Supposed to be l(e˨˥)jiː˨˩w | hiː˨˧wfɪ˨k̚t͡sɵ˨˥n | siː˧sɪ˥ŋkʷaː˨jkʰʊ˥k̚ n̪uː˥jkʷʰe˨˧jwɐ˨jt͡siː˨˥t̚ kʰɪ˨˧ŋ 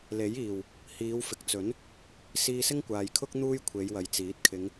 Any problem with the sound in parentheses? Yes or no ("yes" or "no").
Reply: no